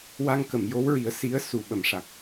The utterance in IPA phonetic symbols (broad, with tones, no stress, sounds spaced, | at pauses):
w a˧ ŋ k ə˨˩˨ m j o˧˥ w ɹ i˨˩˦ ə̯ s i˧˥ ə̯ s u˨˩ ɓ ə˨˩˨ m ʂ a˨˩ k̚